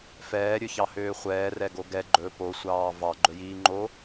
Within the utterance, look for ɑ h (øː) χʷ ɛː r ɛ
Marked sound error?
no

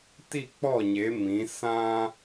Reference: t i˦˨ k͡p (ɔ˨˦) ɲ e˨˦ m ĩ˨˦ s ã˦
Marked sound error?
yes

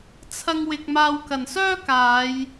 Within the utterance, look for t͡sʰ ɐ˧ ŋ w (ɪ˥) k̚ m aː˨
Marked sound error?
yes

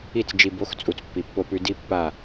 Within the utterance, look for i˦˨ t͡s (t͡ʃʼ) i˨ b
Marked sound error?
yes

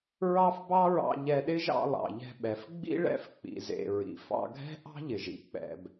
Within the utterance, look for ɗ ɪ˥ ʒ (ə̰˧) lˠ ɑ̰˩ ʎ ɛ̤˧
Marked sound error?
yes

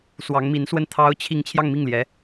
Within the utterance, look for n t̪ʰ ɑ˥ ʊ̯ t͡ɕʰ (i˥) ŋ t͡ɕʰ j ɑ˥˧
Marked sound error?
yes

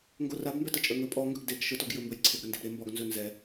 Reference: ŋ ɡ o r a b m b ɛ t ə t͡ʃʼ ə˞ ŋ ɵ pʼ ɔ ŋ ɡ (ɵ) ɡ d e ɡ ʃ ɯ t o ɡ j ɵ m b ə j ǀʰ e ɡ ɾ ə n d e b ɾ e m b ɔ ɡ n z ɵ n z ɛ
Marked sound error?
no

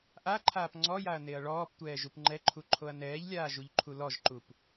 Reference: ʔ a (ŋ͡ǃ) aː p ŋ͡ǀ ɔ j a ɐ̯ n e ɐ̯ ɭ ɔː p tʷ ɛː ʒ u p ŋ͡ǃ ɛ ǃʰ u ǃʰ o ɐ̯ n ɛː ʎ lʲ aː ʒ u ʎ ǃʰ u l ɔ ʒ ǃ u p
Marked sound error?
yes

